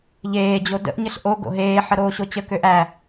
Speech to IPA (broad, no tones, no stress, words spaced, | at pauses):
ʎeː d͡ʑodə̰ʔ ɲəɬʔo ɡo̰ɦeː ħəɾoːɕot͡ɕə køʔæ